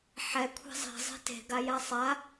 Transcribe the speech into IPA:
ħ ɛ kʷʰ e̤ zˤ ɛ̤ zˤ e̤ t e̤ ɡ a j a sˤ a

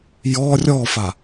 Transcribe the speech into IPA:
j ɔ rʲ ɔ f a

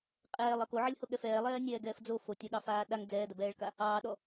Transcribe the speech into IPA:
qʼ ɛː lˠ ʌ k o ʕ ɐ lʲ h o ɠ ɛ f ɛː lˠ ɛː nʲ ɛː ɡ ɛː f d͡z o f o tʲ ɐ ɠ ɑ f aː ɗ a ŋ d͡z ɛː d ɐ b ɛː ɭ k a | ɑː ɗ ɔ

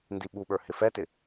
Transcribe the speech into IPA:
n d i ɓ u ɓ ə˞ h ɪ f ɛ t ɪ

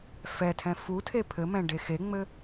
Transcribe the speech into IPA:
f ɛ tʰ ɛ̃ f u tʰ e pʰ ɘ m ɛ̃ ɖ e x e ŋ͡m ɘ

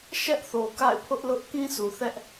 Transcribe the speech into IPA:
ʃ ɛ˦ ʔ θ o˨ k a̰˦˨ ɪ̯ pʰ ʊ˦ ʔ l ʊ˦ ʔ k ĩ˦ sʰ u˨ θ ɛ˦ ʔ

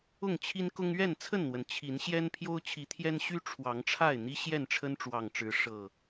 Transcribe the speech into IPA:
ʊ˥˨ ŋ t͡ɕʰ i˦ n k ʊ˦ ŋ ɥ ɛ˥˨ n t͡sʰ ə˥˨ n n̪ w ə˩ n t͡ɕʰ i˨˦ n ɕ j ɛ˦ n pʰ j o˦ ʊ̯ t͡ɕʰ i˨˦ t̪ʰ j ɛ˦ n ɕ y˦ ʈ͡ʂʰ w ɑ˨˦ ŋ ʈ͡ʂʰ a˥˨ ɪ̯ n̪ i˦ ɕ j ɛ˥˨ n ʈ͡ʂʰ ə˦ n ʈ͡ʂ w ɑ˨˩ ŋ ʈ͡ʂ ɻ̩˨˦ ʂ ɤ˨˩

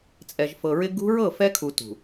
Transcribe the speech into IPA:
t͡sʼ ɛ˨ ʒ f ɤ˨ ɹ ɪ˦ ɡ ṳ˦ ɹ ɤ˦˨ f ɛ˦ kʰ u˨ t ṳ˨

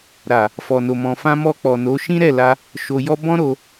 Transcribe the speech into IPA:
ɾ a˨ | f ɔ˨ n o˨ m ɔ̃˨ f ã˧ m ɔ˧ k͡p ɔ˨ n o˨˦ ʃ ĩ˦ ɾ ɛ˦˨ l a˧ | ʃ o˧ j ɔ˦ b ɔ̃˦ ɾ o˧

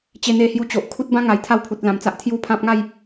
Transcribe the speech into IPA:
t͡ɕ e˧ n̪ e˧ h j u˧ t͡ɕ o˨ ʔ kʰ u˦ t̚ b ã˦ ŋ a˨˩ j t̪ʰ a˥˧ w pʰ u˨ t̚ l ã˨˩ m t͡s a˦ ʔ t̪ʰ j u˥˧ pʰ ã˦ p̚ ŋ a˥˧ j

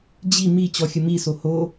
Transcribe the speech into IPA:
d͡ʑ i m i t͡ɕ ɔ xʲ ə m i s o h o

